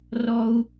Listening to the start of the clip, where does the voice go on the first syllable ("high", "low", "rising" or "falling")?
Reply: high